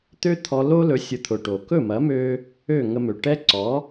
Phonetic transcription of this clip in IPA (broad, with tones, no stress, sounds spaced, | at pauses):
t̪ ø˥ t̪ʰ ɔ˧ l o˥ l ɵ˩˥ sʲ ʊ˩˥ t̪ʰ ʊ˩ ʈ o˩ k ɵ˥˩ m ɐ˩˥ m ø˧ | ø˥˩ ŋ ə˧ m ø˩ ʈ ɛ˥ ǀ ɔ˩˥